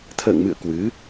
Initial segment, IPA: t̪ʰ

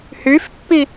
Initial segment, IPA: h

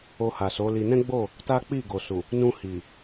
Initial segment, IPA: o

